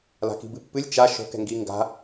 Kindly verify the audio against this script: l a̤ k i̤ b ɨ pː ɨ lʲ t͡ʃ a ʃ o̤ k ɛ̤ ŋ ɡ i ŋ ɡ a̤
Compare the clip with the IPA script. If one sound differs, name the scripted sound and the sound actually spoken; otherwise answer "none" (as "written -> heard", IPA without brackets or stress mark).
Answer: none